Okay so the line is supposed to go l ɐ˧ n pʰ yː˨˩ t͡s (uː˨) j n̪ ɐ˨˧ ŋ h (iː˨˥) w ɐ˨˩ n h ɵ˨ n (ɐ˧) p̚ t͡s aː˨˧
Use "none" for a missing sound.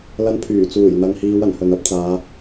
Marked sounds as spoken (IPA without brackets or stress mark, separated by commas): uː˨˩, iː˨˧, ɐ˨˥